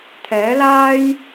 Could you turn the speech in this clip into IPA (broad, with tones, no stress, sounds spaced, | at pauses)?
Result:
t̪ʰ ɛː˨˥ l aː˥ j